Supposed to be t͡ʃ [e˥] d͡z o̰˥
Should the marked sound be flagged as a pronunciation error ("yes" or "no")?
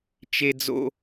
no